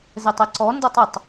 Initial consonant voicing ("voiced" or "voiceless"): voiced